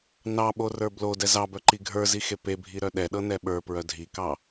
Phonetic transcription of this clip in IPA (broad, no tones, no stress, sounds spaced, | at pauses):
n ɑ ɓ o r ə˞ b l o d ɛ z ɑ b œ ǃ i ɡʱ ə˞ z i x e p e bʱ i ɾ œ ɗ ɛ ɗ ɤ n ɛ ɓ ə˞ p ɹ œ dʱ i k ɑ